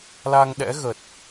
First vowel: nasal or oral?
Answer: oral